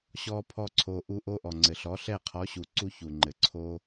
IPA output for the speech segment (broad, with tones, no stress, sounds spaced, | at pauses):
ɕ ɔ˦ pʰ ɔ˦ ǀʰ o˧ ʔ u˧ ʔ o˧ ʔ ɔ˨ ŋ͡ǀ ɘ˨ ɬ ɔ˨˦ ɬ ɛ˦˨ qʰ ɔ˨˦ ɕ u˨ ǀ u˧ ç u˨ ŋ͡ǃ ɘ˨ ǀʰ o˦